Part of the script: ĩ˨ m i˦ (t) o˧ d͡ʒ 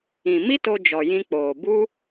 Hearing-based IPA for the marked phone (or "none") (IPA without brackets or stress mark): t